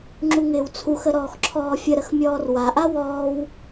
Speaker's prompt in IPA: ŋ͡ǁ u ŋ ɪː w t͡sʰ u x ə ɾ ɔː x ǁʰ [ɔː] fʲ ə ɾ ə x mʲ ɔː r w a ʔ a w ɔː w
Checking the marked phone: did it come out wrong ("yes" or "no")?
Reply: no